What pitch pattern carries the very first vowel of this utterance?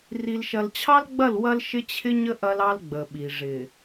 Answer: low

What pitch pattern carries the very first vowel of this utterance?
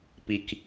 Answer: low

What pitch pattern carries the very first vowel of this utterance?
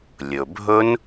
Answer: low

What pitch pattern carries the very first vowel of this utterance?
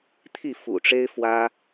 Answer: falling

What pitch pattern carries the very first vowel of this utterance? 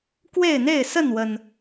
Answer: falling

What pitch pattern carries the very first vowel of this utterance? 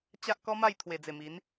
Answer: high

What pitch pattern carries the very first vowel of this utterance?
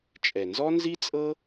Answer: low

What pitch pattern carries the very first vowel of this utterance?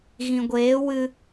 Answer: low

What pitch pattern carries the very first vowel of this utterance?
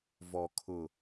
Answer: low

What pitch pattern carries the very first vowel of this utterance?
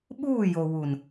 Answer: falling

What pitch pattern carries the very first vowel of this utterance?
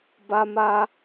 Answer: high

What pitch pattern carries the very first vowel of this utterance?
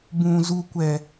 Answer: low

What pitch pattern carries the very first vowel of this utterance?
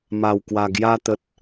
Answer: low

